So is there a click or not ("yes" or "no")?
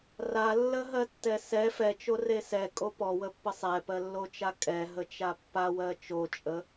no